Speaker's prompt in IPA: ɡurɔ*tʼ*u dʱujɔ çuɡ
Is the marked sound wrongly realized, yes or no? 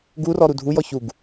yes